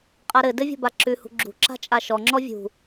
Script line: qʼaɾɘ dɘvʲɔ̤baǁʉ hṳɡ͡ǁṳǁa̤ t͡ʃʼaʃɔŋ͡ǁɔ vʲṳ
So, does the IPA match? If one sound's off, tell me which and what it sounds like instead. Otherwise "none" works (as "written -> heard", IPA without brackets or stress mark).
none